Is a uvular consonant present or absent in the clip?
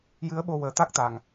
absent